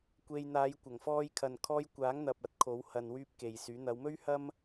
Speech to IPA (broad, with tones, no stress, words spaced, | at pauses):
kʷe˧j n̪aː˨˧jkʷɐ˨˩ŋfɔː˧jkʰɐ˨n kʰɔː˧jkʷaː˨˥ŋn̪ɐ˨p̚ ɐ˧t̚kʰo˨˥w hɐ˨nwyː˧p̚ ke˨jsyː˨˥ n̪ɐ˨˧wmɵ˥ɥhɐ˥m